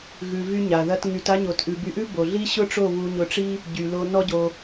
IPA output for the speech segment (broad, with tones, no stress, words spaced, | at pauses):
ɣʉ˨vy˧ ɲa˨ðɐ˦t ŋy˧ta˦ɲo˧t ʔʉ˧ by˧ʔʉ˦ bo˨ɮi˦ ɕʊ˦ʈ͡ʂo˦˨ βu˧ɲʊ˧ʈ͡ʂi˦ | ɟy˨lo˧ nɔ˦ɟo˧